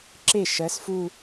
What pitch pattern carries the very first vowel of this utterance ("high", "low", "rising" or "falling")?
falling